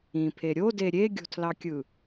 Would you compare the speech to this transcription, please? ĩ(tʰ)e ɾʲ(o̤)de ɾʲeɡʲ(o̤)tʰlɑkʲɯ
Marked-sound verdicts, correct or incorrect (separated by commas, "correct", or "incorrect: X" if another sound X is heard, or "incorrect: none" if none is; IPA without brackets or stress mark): incorrect: pʰ, incorrect: o, correct